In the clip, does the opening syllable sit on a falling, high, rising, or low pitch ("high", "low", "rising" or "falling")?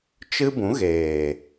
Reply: high